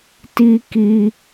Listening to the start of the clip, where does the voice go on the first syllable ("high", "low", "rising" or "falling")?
high